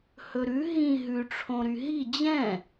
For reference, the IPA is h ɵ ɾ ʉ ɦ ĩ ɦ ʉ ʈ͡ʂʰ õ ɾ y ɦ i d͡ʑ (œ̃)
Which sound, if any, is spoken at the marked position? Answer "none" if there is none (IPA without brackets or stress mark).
ɛ̃